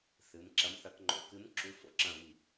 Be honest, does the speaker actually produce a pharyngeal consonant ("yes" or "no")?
no